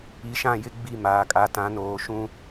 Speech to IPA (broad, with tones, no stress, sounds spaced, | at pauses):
i˨ ʃ ã˦˨ j ɪ˦ ɡ͡b i˦˨ m aː˨ kʼ a˨ t ã˨˦ n oː˨ ʃ ũ˦